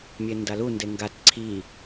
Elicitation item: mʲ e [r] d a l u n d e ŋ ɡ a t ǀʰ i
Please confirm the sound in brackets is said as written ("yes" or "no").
no